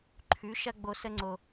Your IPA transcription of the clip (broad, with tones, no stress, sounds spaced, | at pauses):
ǃʰ ʉ˨˦ ʃ ɐ˦ ɡ͡b o˧ s ə˦ ŋ͡ǀ o˧